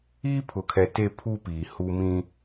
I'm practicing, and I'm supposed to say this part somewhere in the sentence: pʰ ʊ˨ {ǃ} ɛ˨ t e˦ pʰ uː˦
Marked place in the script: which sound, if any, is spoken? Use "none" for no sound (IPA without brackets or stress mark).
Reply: kʰ